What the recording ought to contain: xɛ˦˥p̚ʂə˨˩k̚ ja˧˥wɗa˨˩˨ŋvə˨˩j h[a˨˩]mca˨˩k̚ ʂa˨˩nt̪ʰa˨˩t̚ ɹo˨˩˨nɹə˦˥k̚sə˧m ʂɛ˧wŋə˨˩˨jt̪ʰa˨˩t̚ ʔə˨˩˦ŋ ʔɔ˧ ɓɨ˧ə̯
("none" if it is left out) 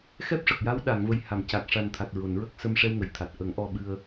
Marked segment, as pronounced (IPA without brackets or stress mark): a˨˩˨